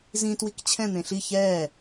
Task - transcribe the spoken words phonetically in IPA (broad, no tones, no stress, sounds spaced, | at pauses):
z ĩ t w i k t͡ɕʰ ɛ̃ n̪ ẽ ɬ i ç ɛː